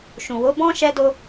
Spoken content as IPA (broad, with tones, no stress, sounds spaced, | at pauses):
ʃ ũ˨ w o˨˦ b ɔ̃˦ ʃ ɛ˧ d o˧